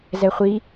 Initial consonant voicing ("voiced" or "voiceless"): voiced